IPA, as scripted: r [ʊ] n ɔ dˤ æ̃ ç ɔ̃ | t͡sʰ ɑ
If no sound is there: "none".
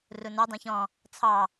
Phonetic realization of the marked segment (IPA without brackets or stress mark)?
ʊ